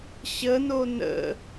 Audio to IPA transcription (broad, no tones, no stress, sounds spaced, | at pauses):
ɕ ə n o n ə̰